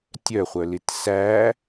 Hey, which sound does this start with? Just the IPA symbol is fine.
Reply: tʲ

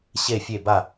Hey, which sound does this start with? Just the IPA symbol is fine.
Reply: ɕ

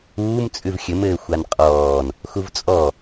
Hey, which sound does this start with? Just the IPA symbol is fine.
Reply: uː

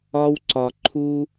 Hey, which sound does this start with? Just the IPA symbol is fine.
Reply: ɒ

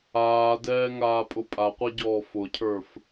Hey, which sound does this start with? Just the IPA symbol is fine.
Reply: aː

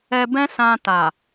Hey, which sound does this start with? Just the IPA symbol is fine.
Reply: ɛ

